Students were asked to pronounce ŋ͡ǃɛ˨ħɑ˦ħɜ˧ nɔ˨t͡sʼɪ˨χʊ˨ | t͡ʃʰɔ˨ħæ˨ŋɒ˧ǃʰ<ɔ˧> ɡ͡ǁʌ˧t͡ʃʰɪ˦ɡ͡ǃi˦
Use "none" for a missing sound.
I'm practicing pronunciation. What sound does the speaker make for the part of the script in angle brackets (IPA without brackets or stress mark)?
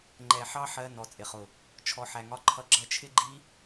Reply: ʌ˧